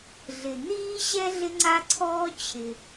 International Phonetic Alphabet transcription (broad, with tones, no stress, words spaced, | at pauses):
ɮɪ˩ n̪iː˥ɕɛ˥ ɮɪ˥ŋ͡ǀa˥ǀʰɔː˥t͡ɕʰɪ˩